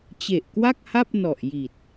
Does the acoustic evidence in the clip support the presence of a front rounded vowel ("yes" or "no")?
no